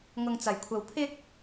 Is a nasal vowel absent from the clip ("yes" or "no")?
yes